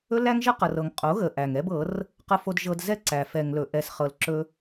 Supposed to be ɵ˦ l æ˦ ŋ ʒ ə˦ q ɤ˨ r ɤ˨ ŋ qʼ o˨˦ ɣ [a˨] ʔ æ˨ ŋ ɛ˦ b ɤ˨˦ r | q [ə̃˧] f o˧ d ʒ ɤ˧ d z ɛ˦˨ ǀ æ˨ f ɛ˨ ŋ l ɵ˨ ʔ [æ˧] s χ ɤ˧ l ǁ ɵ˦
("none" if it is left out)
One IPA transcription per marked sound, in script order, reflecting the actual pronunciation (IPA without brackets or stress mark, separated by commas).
ə˨, ə˧, ɛ˧